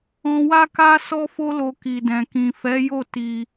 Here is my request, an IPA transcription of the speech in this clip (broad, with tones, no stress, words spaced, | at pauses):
ɔ̃˧wa˦ka˦ sɔ˦fo˦lo˧ ki˨dɛ̃˨ kĩ˨fɛ˨˦jo˦˨ ti˧